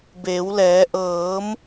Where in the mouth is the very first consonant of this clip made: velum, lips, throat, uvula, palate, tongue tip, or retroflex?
lips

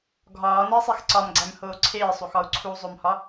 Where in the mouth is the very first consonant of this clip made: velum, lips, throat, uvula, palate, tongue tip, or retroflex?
velum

